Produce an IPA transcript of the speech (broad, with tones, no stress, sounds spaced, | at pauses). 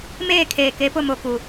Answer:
m eː˦˨ kʰ eː˨ k e˨˦ p ʊ˦˨ m o˨ k u˨